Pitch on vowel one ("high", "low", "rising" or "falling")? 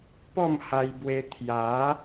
falling